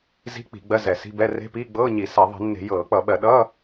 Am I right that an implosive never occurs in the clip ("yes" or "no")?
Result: no